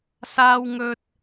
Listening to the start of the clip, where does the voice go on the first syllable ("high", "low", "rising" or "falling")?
high